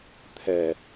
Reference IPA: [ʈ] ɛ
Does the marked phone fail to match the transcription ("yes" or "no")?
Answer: yes